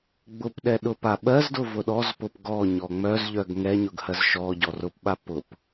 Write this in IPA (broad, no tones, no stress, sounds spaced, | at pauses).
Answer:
ɡ͡b ʊ p ɗ ɛ ɗ ʊ p a ɓ ɜ z d ʊ v ʊ ɗ ɔ z p ʊ p ɡ ɔ ɲ ɔ ŋ͡m œ z ʎ œ ɡ ŋ ɛ ɲ ʊ ɡ h ɜ z ʃ ɔ ɟ ɔ r ʊ p ɓ a p ʊ p